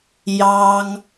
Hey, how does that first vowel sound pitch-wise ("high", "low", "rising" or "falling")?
high